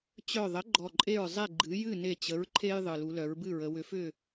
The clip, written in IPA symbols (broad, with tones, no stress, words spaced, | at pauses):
t͡ɕœ˧˩ðˤə˩˥ ɡ͡ǃɔ˧˩ǃʼe˥˩ɹzˤe˥˩ ɡ͡ǃɨ˩˥ jɨ˥˩ne˧˩t͡ɕə˩˥ɹ ǃʰe˦j ðˤɨ˩lu˩˧ lœ˩˧ɹbɨ˥˩ɹə˩˧ wʏ˩˥fʏ˥˩